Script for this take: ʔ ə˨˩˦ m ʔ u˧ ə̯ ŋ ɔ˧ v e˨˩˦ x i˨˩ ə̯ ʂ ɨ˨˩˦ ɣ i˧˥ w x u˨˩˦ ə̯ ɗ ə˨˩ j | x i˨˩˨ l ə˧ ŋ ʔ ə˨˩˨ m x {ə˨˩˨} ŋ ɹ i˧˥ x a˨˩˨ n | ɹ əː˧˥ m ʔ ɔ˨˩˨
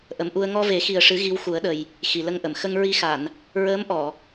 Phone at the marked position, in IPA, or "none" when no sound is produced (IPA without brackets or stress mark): ə˧